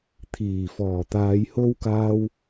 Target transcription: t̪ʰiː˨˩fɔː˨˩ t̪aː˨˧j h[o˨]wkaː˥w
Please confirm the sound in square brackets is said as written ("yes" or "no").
no